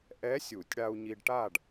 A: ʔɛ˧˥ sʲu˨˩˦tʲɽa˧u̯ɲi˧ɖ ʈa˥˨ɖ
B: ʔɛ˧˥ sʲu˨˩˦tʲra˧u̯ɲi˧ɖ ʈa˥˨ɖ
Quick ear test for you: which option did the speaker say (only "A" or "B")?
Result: A